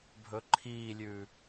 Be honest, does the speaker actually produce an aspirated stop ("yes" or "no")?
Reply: yes